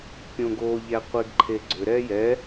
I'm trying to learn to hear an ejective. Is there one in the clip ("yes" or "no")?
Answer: no